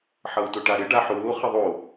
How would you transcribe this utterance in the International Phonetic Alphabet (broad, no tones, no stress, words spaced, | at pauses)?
ħʌu̯tʊʈaɾɪ ɖaħʊː χɪðˤo